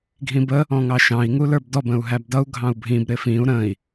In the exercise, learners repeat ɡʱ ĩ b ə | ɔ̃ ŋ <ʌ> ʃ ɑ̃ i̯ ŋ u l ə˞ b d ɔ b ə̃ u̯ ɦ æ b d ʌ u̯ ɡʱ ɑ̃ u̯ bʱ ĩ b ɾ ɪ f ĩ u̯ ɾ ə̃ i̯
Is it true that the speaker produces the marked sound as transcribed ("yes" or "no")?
no